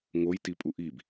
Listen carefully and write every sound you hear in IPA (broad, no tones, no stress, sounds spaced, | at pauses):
ŋ o j t i pʼ u ʔ i b